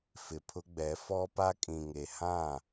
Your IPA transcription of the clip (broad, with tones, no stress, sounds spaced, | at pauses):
f ɪ˨ pʰ ʊ˦ ɡ͡b ɛ˨˦ f ɔ˦ p a˦ kʼ ĩ˨ ŋ e˨ h ã˦˨